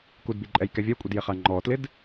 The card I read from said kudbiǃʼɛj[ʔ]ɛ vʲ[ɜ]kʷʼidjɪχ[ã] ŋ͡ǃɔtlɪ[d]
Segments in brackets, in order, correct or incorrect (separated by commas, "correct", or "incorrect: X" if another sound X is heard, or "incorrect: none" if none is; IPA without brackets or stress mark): incorrect: k, correct, incorrect: a, correct